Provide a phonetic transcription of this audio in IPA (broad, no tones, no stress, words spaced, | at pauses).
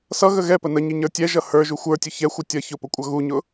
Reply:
sʌɣə ɣɛpə nəɲiɲə˞ tʲɛʒʌ hə˞ʒu xʷə˞tʲʊ çɛxʷʌ tʲʌ çʊpʊkʷʼʌ ɣuɲʊ